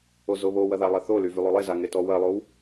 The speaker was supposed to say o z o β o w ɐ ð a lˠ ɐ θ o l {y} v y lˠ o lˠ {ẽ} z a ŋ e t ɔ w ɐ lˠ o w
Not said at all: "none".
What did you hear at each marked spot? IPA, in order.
y, e

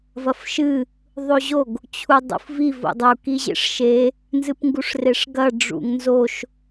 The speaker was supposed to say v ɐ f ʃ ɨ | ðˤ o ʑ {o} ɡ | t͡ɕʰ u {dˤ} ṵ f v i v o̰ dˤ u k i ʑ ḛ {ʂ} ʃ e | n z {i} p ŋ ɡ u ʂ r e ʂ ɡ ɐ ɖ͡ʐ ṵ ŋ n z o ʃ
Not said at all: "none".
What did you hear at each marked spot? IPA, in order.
o, dˤ, ʂ, ɨ

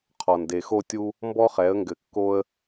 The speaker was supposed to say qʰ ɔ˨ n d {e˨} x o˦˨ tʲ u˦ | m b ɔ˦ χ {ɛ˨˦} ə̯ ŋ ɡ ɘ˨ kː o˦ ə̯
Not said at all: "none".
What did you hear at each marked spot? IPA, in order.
e˨, ɛ˨˦

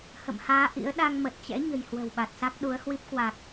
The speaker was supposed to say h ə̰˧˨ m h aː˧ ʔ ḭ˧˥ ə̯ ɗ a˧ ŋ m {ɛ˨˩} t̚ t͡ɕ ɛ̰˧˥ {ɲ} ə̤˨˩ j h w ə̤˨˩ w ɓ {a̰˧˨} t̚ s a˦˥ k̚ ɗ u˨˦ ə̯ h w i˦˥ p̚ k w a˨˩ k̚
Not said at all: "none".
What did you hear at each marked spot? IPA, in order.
ə˨˩, ɲ, a˨˩

